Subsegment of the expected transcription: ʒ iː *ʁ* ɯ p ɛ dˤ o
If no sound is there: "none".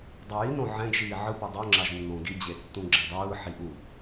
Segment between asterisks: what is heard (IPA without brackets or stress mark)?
ʕ